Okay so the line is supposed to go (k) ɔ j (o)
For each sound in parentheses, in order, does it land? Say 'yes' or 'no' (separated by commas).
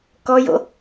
yes, no